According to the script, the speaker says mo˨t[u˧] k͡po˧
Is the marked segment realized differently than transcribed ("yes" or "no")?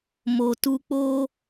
no